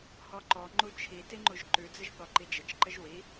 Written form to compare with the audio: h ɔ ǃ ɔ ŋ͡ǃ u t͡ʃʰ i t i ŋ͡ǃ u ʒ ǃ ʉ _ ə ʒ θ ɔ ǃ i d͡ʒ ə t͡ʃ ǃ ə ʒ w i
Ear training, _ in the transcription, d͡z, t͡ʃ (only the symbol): d͡z